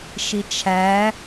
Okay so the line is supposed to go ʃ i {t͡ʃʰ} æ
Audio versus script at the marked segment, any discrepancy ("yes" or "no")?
no